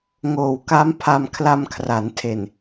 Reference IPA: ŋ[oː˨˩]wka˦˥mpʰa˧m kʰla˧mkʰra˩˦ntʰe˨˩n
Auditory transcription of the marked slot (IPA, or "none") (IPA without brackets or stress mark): oː˨˩